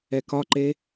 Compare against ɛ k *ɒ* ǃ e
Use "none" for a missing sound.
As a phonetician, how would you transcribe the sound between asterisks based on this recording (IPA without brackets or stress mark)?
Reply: ɒ